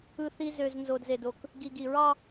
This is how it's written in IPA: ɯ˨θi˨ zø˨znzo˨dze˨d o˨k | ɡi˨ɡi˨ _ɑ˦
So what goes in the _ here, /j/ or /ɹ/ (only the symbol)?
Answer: ɹ